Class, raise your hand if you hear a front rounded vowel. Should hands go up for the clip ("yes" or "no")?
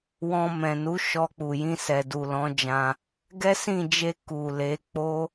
no